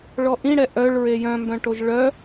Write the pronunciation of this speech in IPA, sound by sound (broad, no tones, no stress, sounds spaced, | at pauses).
ɭ ɔ ʔ ĩ ɽ ɛ ʔ œ ɭ ɹ e j œ̃ m b œ̃ ʈ o ʒ ɭ œ